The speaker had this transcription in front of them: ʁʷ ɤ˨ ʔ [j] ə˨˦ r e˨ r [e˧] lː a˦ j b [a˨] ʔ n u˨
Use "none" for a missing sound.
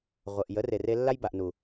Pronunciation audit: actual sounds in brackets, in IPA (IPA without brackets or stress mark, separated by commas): j, e˧, a˨